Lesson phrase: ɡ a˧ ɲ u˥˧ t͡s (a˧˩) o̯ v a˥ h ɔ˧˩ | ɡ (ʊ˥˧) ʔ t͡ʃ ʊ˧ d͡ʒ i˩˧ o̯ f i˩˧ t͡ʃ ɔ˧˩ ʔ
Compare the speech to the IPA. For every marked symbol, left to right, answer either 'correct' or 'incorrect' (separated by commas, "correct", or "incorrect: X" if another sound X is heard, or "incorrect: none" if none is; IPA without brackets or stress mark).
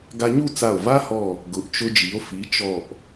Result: correct, incorrect: ʊ˩˧